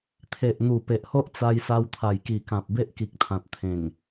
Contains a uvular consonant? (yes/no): no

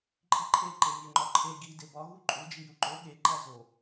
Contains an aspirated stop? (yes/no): yes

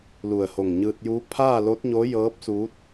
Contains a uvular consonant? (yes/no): no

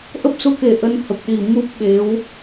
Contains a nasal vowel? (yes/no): no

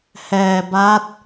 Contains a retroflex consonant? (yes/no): no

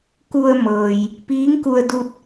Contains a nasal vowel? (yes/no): no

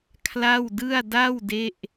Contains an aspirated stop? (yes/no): yes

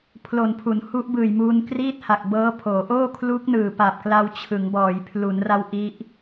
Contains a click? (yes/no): no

